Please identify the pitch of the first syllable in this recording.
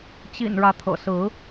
low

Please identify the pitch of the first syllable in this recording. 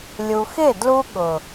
low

